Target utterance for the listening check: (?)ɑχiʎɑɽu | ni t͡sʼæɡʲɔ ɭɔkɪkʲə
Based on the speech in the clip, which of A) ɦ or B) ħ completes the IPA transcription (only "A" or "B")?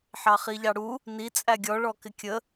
B